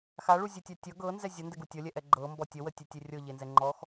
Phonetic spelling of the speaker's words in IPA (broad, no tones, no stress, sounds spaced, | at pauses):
x a ɭ u zʲ u tʲ a tʲ ʌ ɡ ɤ n z ɛ zʲ ʌ n d ɛ ɡ u tʲ ʌ lʲ ɛ ʔ ɛ ɡ͡ǃ ɤ m b ɔ tʲ ə w ə tʲ ɛ tʲ e rʲ ɤ ʎ e n z ɛ ŋ͡ǃ ɔ x